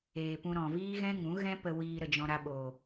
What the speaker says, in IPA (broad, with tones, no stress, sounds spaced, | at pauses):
eː˨ p ũ˧ ɾ ɔ̃˨ v iː˦ ɣ ɛ̃˦ ŋ ũ˨˦ ɣ ɛ̃˦ p ə˧ w iː˧ ɾ ə˧ d͡ʒ ɔ̃˧ ɾ a˧ ɓ oː˨